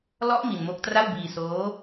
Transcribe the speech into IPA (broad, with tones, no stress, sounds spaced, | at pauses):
l ɔ˦˥ ʔ m i˧ n m o˦˥ k̚ t r a˥˩ w b iː˧ s oː˦˥